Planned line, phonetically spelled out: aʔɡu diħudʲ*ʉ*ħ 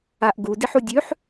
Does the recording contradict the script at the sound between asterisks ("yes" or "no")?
no